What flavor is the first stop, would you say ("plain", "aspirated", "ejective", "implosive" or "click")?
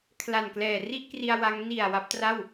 aspirated